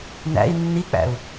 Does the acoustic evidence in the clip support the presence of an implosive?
no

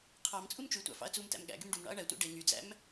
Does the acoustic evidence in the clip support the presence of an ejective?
yes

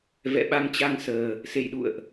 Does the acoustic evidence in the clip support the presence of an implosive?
yes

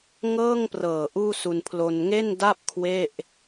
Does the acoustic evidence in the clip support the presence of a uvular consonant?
no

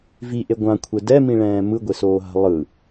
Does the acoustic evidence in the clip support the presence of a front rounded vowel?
no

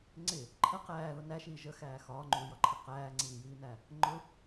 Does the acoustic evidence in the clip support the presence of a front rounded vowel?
no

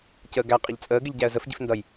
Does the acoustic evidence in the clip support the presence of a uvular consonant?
yes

